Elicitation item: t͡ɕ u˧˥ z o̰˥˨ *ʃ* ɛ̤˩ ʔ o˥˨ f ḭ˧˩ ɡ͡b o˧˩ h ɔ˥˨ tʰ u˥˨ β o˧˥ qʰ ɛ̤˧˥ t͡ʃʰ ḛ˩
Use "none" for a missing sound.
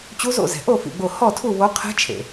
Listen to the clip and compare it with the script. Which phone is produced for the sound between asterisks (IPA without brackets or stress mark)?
z